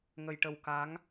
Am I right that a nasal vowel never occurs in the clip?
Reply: yes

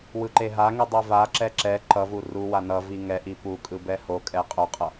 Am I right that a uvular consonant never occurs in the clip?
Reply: no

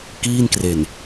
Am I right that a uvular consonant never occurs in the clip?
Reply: yes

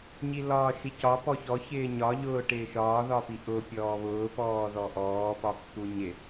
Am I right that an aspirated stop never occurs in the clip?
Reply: yes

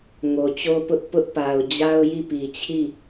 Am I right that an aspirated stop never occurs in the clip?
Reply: no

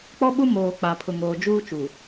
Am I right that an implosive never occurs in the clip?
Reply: no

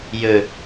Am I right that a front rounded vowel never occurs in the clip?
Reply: no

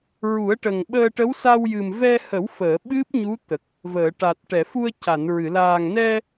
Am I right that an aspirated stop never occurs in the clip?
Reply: yes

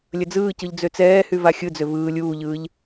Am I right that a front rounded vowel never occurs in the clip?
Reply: no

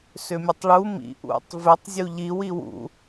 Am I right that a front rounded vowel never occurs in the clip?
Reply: no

